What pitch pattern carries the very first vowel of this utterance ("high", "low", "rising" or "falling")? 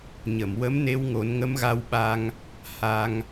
low